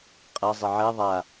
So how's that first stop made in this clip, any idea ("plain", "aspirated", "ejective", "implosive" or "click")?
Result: ejective